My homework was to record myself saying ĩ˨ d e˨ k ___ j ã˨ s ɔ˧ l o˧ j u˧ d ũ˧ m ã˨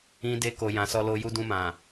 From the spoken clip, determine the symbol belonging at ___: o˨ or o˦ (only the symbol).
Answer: o˨